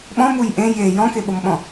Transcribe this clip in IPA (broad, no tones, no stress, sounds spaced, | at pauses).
ɓ ɔ̃ m u j ʔ ẽ j e j ɔ̃ k e ɓ o m ɓ ɔ̃